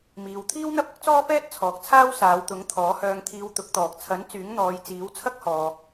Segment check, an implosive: absent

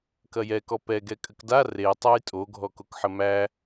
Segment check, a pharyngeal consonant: present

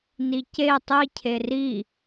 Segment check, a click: absent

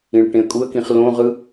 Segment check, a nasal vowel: present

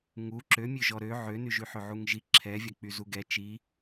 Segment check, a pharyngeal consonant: present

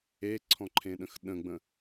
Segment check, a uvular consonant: absent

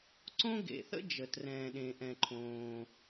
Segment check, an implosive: present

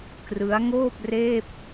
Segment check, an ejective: absent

